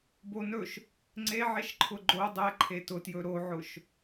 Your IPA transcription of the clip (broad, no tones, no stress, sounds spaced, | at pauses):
b o n ɵ ʃ | ŋ͡ǀ e ʕ e ʃ ǃʰ ʊ ɡ͡ǃ o dˤ ɛ ǃʰ e t ʊ t j ɵ ɾ o ʕ ʊ ʃ